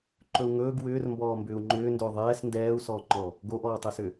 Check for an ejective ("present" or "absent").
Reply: absent